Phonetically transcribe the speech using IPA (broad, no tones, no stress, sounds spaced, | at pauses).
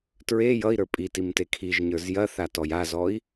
t ɹ e j ʌ i̯ ɾ ə˞ pʼ i t i m t e kʰ i ʒ ɲ ə˞ z j ɐ θ a t ɔ j a z ɔ i̯